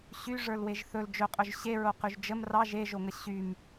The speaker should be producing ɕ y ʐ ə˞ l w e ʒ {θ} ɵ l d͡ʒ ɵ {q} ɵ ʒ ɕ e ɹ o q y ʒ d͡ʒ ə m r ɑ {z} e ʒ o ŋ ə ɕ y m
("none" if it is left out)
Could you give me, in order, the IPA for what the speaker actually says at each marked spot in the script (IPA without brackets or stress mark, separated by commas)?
θ, qʼ, ʒ